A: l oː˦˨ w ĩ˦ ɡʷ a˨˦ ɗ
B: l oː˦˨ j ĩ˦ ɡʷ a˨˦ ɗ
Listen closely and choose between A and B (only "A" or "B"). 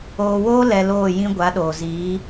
B